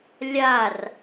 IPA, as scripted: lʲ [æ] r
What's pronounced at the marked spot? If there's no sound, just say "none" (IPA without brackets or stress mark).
a